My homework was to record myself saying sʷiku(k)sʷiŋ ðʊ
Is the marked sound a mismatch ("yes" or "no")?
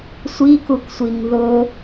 no